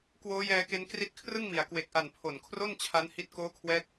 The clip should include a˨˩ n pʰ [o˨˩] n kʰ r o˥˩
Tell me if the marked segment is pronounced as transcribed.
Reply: yes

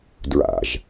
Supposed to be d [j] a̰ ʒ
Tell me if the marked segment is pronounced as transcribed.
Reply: no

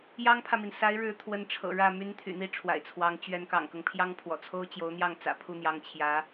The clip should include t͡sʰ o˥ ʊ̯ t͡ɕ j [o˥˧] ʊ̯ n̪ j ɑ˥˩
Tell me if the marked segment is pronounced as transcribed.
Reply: no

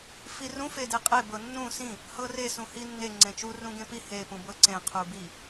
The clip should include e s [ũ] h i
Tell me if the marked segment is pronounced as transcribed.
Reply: yes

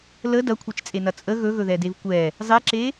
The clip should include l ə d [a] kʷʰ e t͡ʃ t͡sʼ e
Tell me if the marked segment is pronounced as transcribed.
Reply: no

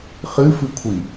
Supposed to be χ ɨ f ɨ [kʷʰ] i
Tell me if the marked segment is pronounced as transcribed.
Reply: yes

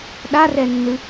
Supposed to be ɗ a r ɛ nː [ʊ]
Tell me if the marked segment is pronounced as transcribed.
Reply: no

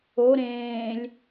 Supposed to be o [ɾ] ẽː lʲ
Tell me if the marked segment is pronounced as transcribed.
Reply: yes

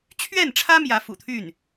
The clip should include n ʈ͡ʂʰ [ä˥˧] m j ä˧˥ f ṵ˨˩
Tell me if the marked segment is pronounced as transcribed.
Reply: no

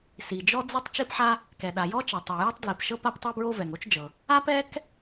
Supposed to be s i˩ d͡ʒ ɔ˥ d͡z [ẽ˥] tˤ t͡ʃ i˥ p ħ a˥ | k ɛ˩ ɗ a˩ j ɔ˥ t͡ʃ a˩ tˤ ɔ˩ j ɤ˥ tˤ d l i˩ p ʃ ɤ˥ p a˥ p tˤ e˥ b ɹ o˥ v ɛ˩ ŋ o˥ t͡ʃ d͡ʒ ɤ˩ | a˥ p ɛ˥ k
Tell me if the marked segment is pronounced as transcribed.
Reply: no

